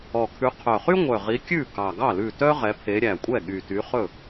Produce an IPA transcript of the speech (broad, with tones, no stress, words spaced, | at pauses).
ɔ˨˩kʰʉ˨˦ qʰœ˨˩χy˥ŋʷœ˨˩ ʁi˨˦kʲʉ˥˩ kɑ˨˩ɡɑ˥˩ lʉ˥˩ tœ˥ ʁɛ˨˦pʰe˨˦ɾʲæ˨˩ kʷʼɛ˥˩ ɠy˨˩ty˨˦χɵ˥˩